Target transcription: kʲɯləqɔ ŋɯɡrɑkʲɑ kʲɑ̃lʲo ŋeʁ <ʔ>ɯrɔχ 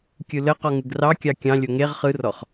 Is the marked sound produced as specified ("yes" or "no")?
no